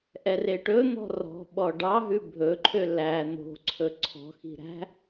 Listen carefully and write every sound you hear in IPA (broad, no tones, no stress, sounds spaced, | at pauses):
ʔ ɛ r e ʈ ɵ n̪ ɔ̤ r ɔ̤ ɓ ɔ ɖ ɑ ɦ ʉ bʱ ɵ ǃʰ ø l æ n̪ o̤ ǀʰ ɵ ǀʰ ɔ̤ x i̤ ɾ æ̤